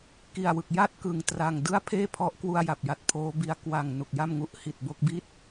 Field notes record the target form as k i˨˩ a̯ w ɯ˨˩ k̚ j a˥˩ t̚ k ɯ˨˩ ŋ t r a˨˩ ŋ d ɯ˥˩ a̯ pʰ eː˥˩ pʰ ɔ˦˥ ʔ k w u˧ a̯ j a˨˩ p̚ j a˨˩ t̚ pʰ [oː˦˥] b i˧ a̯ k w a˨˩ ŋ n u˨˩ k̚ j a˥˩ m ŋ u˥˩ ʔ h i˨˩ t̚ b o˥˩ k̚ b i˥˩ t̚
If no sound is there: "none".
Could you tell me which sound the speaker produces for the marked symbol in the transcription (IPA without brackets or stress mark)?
oː˦˥